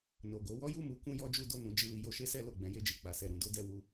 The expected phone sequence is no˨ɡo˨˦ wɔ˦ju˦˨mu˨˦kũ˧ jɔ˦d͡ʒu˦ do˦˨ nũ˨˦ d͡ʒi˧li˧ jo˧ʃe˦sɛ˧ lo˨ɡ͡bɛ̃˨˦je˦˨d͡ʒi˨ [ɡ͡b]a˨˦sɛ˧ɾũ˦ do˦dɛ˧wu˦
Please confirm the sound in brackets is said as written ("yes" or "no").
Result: no